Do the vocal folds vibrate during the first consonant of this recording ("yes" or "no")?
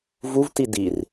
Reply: yes